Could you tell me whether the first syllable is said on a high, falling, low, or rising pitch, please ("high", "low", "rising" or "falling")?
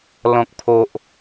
low